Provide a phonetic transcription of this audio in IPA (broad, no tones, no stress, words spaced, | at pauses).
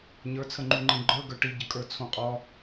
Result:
ɲə˞t͡sʰəŋ͡ǃuŋ͡ǃẽ ɡ͡ǃə˞ ɡə˞ʈiɟə kʼə˞t͡sʰõqʼɒ